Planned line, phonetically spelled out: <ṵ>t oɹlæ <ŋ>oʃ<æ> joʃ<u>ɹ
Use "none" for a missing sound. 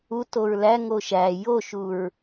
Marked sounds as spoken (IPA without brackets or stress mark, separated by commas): u, ŋ, æ, u